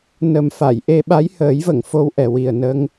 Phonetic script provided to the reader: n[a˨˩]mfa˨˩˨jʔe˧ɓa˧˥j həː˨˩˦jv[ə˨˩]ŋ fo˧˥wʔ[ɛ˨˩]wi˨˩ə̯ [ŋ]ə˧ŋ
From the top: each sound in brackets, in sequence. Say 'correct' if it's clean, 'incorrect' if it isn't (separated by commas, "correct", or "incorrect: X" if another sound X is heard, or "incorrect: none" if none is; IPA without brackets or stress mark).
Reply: incorrect: ə˨˩, incorrect: ə˨˩˨, correct, incorrect: n